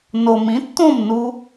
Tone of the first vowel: low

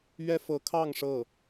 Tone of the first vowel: high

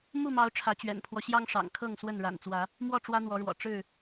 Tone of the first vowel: falling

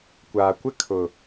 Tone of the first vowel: low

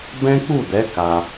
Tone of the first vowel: high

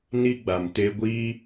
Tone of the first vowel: high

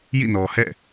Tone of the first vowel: falling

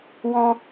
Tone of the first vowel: high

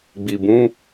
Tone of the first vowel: low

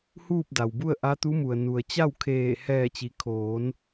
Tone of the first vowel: falling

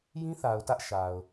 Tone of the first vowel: high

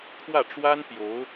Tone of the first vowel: falling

